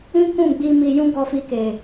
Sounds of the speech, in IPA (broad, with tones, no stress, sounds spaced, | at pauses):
ĩ˦ k ũ˦˨ ɡ͡b i˧ m i˧ j ũ˦ ɡ ɔ˧ f i˧ k e˨